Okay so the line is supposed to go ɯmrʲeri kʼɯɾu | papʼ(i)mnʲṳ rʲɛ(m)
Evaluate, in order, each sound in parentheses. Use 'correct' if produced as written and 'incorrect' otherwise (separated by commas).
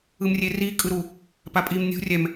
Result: correct, correct